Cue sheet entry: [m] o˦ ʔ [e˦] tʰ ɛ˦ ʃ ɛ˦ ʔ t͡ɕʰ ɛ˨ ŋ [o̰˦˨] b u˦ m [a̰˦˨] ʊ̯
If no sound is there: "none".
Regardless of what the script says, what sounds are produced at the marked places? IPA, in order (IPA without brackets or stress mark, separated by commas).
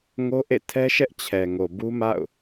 ŋ, ḛ˦˨, o˨, a̰˦˨